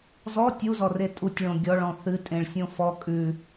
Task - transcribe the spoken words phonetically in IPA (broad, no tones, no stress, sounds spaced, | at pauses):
z ɔ tʲ u z ɔ r e tʼ u tʲ ɭ õ ɡʲ ɔ ɭ ɔ̃ θ ɨ tʼ ẽ ɭ sʲ õ f ɔ kʼ ʉ